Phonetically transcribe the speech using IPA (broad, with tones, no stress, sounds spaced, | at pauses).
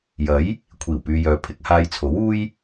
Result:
j ɐ˨˥ j | kʷʰ iː˨˩ w p yː˨ j œː˨ pʰ ɪ˧ k̚ h aː˧ j t͡sʰ o˨˥ w uː˥ j